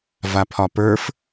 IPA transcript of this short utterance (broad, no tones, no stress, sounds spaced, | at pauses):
v a pʰ ɒ p ə˞ f